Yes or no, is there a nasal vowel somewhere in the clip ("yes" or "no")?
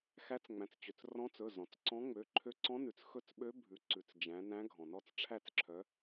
yes